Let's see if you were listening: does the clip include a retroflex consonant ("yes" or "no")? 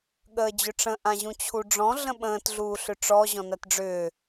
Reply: yes